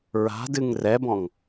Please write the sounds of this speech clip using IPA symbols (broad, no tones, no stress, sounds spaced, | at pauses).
ɹ a̤ d ɨ ŋ r ɛ b ɔ̃ ŋ